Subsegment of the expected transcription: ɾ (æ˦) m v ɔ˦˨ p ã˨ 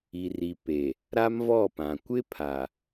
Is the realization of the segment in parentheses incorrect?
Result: yes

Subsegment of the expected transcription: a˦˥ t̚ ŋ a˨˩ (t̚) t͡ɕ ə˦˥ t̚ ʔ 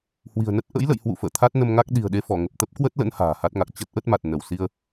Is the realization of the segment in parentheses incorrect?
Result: yes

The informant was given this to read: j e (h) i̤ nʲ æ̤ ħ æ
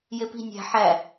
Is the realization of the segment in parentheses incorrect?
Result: yes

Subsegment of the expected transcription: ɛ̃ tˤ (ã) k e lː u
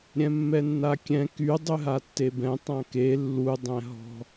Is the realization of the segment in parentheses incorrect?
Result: no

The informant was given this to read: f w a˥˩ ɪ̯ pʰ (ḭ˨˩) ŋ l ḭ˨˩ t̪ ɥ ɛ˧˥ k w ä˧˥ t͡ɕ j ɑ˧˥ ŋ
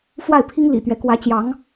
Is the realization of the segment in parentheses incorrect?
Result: yes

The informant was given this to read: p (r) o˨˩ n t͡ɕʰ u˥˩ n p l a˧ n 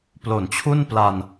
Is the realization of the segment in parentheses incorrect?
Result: yes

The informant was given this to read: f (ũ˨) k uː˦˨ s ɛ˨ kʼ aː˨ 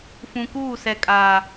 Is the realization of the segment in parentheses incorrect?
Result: no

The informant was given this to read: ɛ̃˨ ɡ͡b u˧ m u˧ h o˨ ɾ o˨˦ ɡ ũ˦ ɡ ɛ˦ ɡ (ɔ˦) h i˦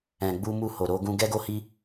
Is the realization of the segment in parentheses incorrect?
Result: yes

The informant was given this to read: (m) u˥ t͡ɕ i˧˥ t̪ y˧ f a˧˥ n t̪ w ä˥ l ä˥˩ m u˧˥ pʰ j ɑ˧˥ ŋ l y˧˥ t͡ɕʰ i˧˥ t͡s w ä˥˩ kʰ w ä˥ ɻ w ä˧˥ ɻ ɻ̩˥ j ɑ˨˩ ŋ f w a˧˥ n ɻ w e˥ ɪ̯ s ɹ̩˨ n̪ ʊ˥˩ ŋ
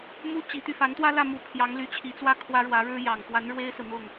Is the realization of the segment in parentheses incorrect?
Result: no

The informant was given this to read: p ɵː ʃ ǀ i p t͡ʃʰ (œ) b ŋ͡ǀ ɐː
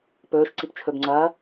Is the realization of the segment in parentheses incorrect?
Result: yes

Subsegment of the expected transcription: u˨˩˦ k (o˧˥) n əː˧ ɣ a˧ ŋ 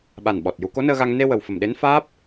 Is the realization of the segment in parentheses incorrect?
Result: no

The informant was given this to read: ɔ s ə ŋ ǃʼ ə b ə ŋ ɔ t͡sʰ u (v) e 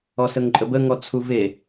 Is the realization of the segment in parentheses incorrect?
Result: no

